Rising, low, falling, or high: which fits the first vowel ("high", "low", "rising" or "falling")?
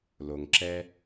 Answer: low